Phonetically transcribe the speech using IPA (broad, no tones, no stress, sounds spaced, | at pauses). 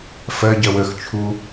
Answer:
f ɜ ɟ ɜ w ə x t͡ʃʰ u